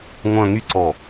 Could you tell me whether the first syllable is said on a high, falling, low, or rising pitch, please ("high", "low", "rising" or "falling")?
falling